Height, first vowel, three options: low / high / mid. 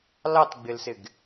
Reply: low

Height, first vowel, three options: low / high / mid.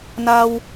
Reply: low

